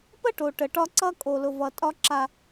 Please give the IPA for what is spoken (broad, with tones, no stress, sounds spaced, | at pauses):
p ə˦ ʈ o˨ ʈ ə˨ ʈ ɒ˦ ǀ ʌ˦ kʼ o˨ l ʊ˨ v ʌ˨ tʼ ɒ˦ ǁ a˦